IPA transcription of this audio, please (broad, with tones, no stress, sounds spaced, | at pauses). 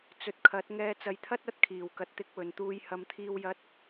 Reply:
t͡s ɵ˨˥ t̚ kʰ ɐ˨˥ t̚ ŋ ɛː˧ t͡s ɐ˨ j t̪ʰ ɐ˥ t̚ ɐ˥ t̚ kʰ iː˨˩ w k ɐ˨ t̚ t̪ ɪ˧ k̚ w ɵ˨˩ n t̪ uː˧ j h ɐ˨ m t̪ʰ iː˧ w j ɐ˧ t̚